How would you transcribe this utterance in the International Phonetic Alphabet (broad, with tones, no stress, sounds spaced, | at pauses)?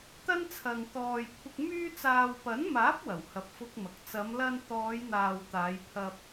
t̪ ɐ˥ n t͡sʰ ɐ˨ ŋ t̪ ɔː˨ j kʷʰ ɪ˧ k̚ m yː˥ t͡s aː˨ w p ɐ˨˥ n m aː˨˥ p̚ w ɐ˨˩ w h ɐ˧ p̚ f ʊ˥ k̚ m ɐ˨ k̚ t͡s ɐ˨˧ m l ɐ˧ n t̪ ɔː˨˧ j n̪ aː˨ w t̪ aː˨˧ j pʰ ɐ˧ p̚